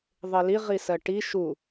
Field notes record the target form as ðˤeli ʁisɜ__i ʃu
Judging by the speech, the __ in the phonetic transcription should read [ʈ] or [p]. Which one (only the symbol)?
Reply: ʈ